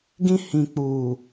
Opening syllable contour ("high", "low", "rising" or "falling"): high